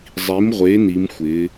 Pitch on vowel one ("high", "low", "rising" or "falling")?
rising